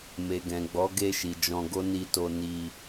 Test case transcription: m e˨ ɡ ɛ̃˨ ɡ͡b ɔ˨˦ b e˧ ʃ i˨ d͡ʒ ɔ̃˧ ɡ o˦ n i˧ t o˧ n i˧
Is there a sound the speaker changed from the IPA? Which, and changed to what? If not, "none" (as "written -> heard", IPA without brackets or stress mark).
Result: b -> ɡ